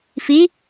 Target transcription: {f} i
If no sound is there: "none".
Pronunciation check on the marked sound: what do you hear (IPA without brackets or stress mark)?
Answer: f